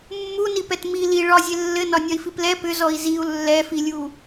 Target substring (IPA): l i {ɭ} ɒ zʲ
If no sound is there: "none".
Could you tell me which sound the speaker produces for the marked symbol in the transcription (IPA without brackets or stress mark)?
ɭ